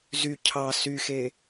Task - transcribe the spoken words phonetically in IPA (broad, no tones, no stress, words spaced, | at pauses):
zy cʰɑ syxe